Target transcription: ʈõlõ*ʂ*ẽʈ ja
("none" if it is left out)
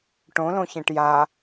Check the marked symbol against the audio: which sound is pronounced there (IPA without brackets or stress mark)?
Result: ç